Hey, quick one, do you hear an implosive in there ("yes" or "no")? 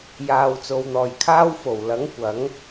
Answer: no